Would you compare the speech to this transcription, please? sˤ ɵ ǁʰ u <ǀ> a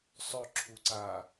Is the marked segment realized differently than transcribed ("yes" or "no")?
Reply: no